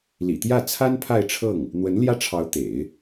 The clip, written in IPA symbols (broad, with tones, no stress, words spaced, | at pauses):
lḭ˨˩t̪jä˥˩ t͡sʰa˥n pʰa˥˧ɪ̯ʈ͡ʂʰɤ˥˩ŋ | n̪wə˧˥n ljä˥˩ʈ͡ʂʰɑ˧˥ʊ̯ t̪ḛ˨˩˦ɪ̯